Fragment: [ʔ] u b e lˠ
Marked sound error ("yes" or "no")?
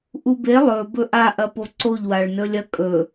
no